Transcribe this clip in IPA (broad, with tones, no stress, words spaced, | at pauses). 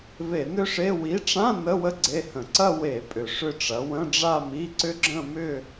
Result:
ve˧˩˧nʏ˥˧ʂe˧˥˧ wi˨˥ʈ͡ʂã˧˥˧ nə˧˥˧wə˦˥ ɡ͡ǀe˧˥˧hə̃˧˩˧ ǀɐ˥˧ we˧˩˧pʼʏ˨˩ ʂʏ˥˧ʈ͡ʂɐ˨˥ wə̃˧˥˧ɖ͡ʐa˥˧mi˧˥˧ ǀʏ˦˥ɡ͡ǁə̃˥˧ mʏ˥˧